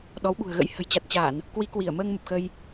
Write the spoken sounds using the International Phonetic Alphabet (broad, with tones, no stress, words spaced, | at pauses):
ɗɔ˨˦wɓṳ˨˩ə̯ɣə̰˧˥j hə̤˨˩jt͡ɕa˨˩t̚t͡ɕa˧˩˨n | kwi˨˦kwi˧˩ə̯məː˧ŋ mə˨˩p̚xə˧j